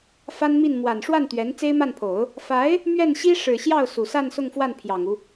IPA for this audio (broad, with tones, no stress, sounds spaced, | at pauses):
f a˥ n m i˥˩ n m w a˨˩ n ʂ w a˥˩ n t̪ ɥ ɛ˧˥ n t͡s e˥ ɪ̯ m a˥˩ n pʰ o˨˩˦ ʊ̯ | f a˧˥ ɪ̯ | m ɥ ɛ˥˩ n ɕ i˥ ʂ ɻ̩˨˩ ɕ j ɑ˥˩ ʊ̯ s u˨˩ s a˥˧ n s ʊ˥˧ ŋ f w a˥˩ n pʰ j ɑ˨˩ ŋ u˦